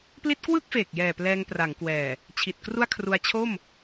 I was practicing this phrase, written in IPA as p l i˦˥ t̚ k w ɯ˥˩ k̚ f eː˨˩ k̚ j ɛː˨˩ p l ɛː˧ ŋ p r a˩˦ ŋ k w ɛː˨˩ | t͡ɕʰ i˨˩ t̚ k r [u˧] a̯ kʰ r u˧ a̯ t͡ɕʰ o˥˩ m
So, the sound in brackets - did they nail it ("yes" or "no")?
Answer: no